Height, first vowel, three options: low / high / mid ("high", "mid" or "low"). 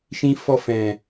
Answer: high